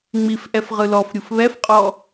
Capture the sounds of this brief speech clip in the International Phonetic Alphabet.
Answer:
ŋ͡m i f ʔ ɛ f ʁ ɯ l ɔ f ɾʲ u f β ɛ f qʼ ɔ

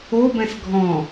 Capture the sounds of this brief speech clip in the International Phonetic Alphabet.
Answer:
o b ɛ̃ s ɡʱ ɔ̃

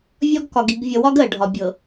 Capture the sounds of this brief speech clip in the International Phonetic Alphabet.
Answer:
vʲ ɒ˦ ɡ k ɒ˨ ɡ i˨ ɡ vʲ ʌ˨ w ɒ˦ ɡ ɜ˨ ɖʱ ɒ˨ bʲ ɤ˨

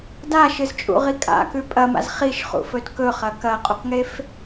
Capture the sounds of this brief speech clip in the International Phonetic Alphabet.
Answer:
d a ʃ ɨ z t͡ʃʼ ṵ ʁ i kʼ a̰ k ʉ pʼ ɐ m a̰ z χ i ʃ χ ṵ f ɵ d k ɵ χ ɐ k ɐ qʼ u q ŋ e f

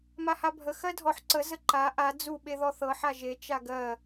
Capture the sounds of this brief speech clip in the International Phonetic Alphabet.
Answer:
m a h a bʱ ə x ɜ dʱ ɔ ħ ǀ ə z ə ǃ a ʔ a d͡z u ɓ e ð ɔ θ ɤ ħ a ʒ e t͡ʃ a ɡ ɜ

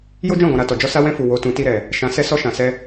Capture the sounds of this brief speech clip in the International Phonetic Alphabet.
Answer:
j o˦ d͡ʒ ɔ̃˦˨ ɡ ɔ̃˨ ɾ a˨ t ɔ˨ d͡ʒ ɔ˧ s a˧ w ɛ̃˧ f u˨ w o˨ t ũ˨ t i˧ ɾ ɛ˨ | ʃ ã˨ s ɛ˧ s ɔ˧ ʃ ã˨ s ɛ˧

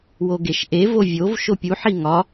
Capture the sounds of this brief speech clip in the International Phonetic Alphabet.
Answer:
w o ɡ e ʃ ʔ e v o vʲ o v ʃ o pʲ u ħ i ŋ ɒ

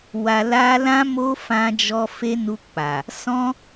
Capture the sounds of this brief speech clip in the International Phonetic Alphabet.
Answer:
w a˧ l a˦ l ã˦ m o˦ f ã˧ d͡ʒ ɔ˧ f e˦ n u˧ k͡p a˨ | s ɔ̃˦

